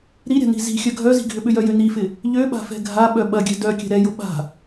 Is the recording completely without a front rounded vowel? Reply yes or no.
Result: no